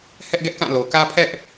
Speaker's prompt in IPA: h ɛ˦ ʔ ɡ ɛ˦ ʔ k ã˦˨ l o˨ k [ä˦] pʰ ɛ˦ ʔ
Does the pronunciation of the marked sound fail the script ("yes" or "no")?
no